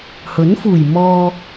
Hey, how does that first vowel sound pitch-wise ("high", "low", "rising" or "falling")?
rising